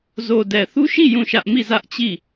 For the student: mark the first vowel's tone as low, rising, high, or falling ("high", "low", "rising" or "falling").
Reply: low